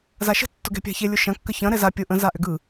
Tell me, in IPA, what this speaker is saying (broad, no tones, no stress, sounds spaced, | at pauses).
z a ʃ ə̤ tː ʊ ɡ ɛ̤ pʲ a̤ ç e lʲ ʊ ʃ ɐ̃ kː ə ç ɐ̃ ɾ ɛ z a pʲ ʊ ʔ ə̃ z a ʔ ʏ ɡ ɯ